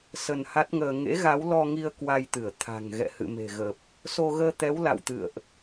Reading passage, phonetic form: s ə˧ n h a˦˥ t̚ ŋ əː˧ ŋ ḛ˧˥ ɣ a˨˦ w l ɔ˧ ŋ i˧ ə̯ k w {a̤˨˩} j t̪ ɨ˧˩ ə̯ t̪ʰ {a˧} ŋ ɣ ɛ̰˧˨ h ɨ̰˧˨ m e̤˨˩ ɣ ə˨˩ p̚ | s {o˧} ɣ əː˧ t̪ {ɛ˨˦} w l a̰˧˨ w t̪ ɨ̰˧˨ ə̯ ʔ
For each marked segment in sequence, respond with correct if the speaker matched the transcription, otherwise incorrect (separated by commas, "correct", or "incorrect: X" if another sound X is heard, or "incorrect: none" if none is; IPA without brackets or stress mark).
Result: incorrect: a˧, incorrect: a̤˨˩, correct, correct